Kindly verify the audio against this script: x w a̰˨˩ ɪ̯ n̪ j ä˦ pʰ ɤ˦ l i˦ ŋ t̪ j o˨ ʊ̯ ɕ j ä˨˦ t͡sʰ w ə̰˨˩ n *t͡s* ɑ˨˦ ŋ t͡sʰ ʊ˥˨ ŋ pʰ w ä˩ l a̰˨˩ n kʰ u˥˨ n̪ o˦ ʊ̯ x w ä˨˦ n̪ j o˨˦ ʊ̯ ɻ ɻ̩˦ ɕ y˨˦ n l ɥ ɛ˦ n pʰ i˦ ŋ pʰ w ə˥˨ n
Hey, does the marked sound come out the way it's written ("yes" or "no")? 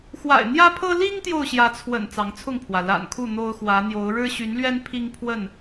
yes